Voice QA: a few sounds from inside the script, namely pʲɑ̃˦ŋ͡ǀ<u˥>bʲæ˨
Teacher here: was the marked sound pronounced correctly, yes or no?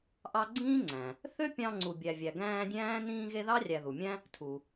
no